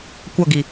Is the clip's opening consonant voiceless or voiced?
voiceless